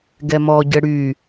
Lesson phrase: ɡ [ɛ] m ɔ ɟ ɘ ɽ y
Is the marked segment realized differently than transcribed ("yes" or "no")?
no